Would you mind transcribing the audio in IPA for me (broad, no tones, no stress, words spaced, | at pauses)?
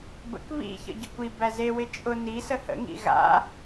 bə̰k βḭçə̰ ɟəkʷi bæze wɪt͡ʃʼʊ nisə hə̰ŋḭ ɣa̰